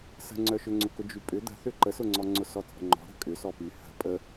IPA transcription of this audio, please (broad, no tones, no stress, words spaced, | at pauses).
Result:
sə̤ŋ͡ǀœʃʏŋ͡ǀʊ kʊd͡ʒypʼʏ d̪ə̤θʏ ǃəsʊŋ͡ǀɔŋ͡ǀʊ sɔt͡sʼə̤ŋ͡ǃɔ̤ ɾə̤kʼʏ sɔpy hə̤ pʼə